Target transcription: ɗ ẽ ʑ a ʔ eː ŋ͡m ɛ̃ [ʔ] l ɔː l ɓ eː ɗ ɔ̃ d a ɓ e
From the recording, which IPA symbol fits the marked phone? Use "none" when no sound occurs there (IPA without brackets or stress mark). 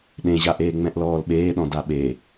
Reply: ʔ